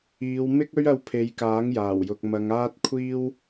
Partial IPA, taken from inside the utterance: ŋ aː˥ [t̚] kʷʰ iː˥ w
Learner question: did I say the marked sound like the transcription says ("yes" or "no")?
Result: yes